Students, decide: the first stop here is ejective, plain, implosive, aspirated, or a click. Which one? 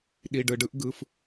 implosive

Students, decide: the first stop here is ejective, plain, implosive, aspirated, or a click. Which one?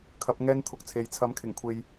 aspirated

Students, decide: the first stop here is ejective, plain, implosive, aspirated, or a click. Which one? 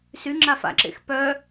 click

